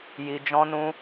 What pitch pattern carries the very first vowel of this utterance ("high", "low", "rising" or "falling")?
low